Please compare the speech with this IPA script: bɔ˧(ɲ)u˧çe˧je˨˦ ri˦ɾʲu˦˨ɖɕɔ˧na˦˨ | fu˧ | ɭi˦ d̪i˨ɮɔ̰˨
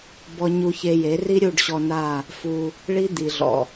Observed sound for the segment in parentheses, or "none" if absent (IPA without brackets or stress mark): ɲ